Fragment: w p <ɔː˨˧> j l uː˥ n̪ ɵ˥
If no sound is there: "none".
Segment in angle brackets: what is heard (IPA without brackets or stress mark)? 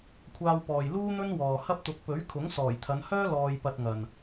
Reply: ɔː˨